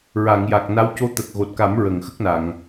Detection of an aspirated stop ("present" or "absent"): absent